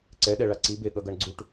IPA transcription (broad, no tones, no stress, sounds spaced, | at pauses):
ǀ ɛ ɗ ɛ ɭ a ǀ i b e ɠ ʌ ɡ ʌ ɳ ɡ͡ǀ u ʈ